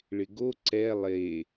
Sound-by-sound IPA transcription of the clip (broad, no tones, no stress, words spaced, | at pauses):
ɭɪɡo ǀɛ lˠe